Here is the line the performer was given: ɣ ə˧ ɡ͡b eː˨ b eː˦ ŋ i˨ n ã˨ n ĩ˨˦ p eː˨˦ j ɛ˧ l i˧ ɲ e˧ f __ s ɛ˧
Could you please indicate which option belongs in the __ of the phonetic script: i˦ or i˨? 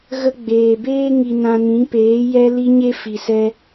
i˨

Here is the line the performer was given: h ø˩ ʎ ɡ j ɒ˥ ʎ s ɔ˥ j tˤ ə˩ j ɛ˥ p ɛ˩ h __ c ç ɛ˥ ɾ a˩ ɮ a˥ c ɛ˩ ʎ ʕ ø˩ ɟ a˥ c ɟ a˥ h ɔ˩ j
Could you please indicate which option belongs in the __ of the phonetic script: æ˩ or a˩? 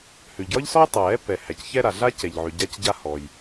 æ˩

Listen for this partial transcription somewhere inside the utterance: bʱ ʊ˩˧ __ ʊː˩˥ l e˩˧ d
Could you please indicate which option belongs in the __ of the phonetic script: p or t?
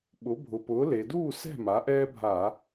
p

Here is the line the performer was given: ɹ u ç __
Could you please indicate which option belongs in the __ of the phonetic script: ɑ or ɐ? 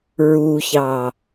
ɑ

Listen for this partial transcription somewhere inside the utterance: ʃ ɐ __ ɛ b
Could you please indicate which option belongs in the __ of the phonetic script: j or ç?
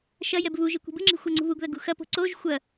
j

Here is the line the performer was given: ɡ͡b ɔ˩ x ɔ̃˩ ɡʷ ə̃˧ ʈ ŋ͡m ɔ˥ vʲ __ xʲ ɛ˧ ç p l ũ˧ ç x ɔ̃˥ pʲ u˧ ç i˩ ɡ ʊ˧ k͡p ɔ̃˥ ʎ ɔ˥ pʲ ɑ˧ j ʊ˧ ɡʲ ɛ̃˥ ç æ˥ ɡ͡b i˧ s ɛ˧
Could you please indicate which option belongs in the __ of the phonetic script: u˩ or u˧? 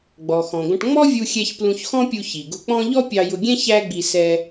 u˧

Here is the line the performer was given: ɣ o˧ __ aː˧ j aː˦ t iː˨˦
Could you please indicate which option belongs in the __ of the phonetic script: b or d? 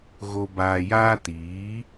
b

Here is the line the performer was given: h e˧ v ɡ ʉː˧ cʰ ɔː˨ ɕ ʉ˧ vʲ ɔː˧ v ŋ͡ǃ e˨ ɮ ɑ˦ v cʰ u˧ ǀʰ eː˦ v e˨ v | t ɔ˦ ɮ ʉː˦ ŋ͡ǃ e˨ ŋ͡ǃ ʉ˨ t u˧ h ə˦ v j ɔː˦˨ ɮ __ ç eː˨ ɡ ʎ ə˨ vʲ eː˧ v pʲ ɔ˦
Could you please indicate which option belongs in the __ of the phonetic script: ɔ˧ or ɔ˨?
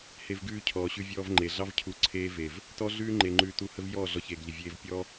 ɔ˧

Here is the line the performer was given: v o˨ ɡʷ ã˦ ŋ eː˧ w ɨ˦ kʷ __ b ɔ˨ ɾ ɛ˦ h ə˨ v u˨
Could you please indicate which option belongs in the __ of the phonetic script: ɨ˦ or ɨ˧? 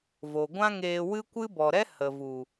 ɨ˦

